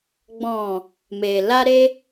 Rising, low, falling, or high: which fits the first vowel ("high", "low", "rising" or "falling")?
low